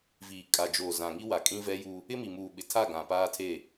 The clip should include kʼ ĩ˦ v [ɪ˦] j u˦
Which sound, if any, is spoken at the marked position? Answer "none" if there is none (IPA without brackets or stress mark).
ɛ˦